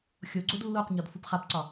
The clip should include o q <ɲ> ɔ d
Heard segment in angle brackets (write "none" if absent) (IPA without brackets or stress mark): ɲ